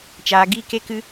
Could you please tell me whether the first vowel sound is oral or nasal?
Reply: oral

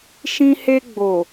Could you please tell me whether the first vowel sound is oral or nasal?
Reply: nasal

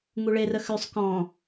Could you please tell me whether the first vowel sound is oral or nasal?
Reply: oral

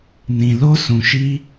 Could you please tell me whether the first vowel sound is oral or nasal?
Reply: nasal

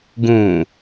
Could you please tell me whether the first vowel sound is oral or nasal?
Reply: nasal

